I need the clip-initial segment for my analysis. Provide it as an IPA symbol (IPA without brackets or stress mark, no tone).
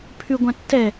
pʰ